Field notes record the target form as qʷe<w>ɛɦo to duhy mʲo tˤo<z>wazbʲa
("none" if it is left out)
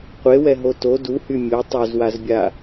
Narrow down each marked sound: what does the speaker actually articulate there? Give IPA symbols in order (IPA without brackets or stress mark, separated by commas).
w, z